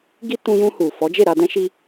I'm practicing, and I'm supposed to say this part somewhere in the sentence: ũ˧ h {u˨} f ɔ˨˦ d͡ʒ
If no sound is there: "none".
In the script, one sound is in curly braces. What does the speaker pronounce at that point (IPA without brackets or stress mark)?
u˨